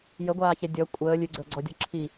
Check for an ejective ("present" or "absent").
present